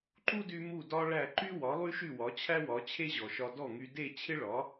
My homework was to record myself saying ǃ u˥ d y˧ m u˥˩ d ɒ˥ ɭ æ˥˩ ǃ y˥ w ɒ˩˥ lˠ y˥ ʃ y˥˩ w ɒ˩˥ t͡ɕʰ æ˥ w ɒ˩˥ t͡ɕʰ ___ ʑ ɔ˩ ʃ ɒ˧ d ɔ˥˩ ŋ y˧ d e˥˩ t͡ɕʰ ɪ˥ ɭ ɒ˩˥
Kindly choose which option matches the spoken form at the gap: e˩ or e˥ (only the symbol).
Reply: e˥